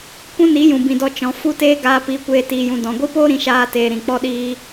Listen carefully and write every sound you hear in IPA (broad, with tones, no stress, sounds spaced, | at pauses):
kʷ ũ˦ n i˨˦ j ũ˨ b ĩ˨ d ɔ˧ t͡ʃ ɔ̃˨ f u˦ t eː˦ ɡ aː˧ p iː˧ kʷ eː˧ t iː˧ j ũ˧ d ɔ̃˨ ɡʷ i˦ p oː˦ ɾ ĩ˧ ʃ aː˧ t eː˨ ɾ ĩ˨ k͡p ɔ˦ ɗ iː˦